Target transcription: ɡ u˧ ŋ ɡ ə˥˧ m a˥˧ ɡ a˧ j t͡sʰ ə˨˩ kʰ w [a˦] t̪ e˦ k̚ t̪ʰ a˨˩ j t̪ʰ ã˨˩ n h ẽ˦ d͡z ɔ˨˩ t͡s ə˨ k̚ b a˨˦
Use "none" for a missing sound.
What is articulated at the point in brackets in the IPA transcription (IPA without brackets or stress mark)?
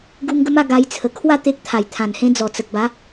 a˥˧